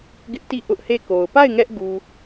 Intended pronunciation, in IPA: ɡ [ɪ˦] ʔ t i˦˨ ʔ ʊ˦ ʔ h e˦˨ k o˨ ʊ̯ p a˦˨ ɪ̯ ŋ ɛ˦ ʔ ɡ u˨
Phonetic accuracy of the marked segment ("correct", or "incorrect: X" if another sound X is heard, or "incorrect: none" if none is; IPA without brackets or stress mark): correct